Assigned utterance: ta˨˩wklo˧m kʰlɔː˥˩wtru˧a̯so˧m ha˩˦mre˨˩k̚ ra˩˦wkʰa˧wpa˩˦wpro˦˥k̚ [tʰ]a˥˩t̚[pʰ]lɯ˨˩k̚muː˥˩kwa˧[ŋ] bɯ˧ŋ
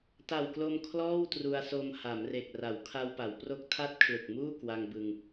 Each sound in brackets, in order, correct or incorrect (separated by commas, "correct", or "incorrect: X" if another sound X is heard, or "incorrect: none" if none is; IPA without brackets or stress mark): correct, incorrect: kʰ, correct